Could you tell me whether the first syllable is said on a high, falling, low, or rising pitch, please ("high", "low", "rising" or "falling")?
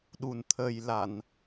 low